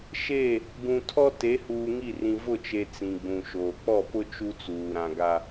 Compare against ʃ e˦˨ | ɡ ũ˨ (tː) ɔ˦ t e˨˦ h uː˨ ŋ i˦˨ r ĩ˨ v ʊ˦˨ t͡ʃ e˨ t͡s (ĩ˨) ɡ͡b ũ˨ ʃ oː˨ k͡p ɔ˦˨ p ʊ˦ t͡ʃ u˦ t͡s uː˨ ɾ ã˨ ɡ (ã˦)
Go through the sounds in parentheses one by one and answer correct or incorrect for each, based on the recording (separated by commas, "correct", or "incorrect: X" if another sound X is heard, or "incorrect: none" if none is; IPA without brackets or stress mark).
incorrect: tʰ, correct, incorrect: a˦